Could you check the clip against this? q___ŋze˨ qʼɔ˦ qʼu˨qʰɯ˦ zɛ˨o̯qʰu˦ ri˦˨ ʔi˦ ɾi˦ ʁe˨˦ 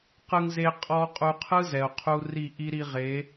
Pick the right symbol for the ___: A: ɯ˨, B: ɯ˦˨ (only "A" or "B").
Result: A